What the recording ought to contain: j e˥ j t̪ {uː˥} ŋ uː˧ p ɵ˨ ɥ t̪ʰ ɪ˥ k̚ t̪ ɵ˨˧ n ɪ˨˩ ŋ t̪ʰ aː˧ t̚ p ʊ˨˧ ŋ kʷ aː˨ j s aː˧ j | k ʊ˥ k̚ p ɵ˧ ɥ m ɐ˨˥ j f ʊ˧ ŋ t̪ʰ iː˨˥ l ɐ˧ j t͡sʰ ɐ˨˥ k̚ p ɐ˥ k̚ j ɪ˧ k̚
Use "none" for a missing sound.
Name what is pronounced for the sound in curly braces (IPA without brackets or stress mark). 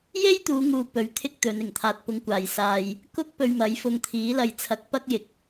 uː˨˧